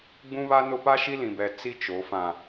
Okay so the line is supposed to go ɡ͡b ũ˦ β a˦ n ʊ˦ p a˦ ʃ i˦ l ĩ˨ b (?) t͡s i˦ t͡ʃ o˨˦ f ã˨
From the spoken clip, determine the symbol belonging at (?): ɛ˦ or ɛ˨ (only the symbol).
ɛ˨